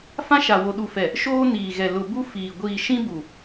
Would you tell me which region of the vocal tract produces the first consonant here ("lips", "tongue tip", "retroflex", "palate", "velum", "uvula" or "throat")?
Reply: lips